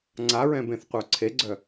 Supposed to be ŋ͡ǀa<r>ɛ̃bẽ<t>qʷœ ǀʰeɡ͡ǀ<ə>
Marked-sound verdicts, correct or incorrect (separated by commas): incorrect, incorrect, incorrect